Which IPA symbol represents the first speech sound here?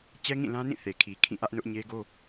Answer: t͡ɕ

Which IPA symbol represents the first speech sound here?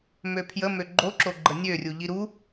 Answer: m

